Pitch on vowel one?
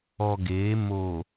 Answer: low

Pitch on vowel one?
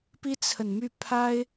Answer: high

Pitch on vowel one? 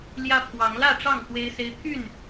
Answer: high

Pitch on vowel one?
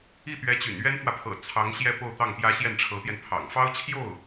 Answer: falling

